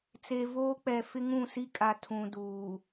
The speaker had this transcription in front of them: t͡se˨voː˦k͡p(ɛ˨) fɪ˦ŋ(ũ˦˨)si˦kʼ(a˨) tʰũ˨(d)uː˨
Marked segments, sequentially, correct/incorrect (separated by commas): correct, correct, correct, correct